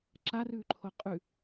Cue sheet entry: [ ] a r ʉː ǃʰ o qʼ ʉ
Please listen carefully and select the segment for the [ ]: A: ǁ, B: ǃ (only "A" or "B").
A